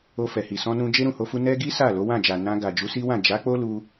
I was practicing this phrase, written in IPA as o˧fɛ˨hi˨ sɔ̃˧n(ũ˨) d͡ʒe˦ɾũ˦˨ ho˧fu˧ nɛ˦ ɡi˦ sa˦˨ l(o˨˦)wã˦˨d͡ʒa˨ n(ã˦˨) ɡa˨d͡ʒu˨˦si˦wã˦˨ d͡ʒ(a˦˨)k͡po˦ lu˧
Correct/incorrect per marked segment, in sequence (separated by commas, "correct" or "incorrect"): incorrect, correct, incorrect, incorrect